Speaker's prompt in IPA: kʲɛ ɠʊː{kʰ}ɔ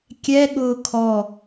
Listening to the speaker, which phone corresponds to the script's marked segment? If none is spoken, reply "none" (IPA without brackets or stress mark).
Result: kʰ